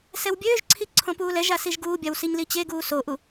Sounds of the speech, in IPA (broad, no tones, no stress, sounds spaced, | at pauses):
s ɛ w bʲ øː ʒ ǀʰ i ǀʰ õ p uː l ɛ ʒ a s i ʒ ɡ uː bʲ a w s i ɲ l i t͡ɕ e ɡ uː s o ʔ u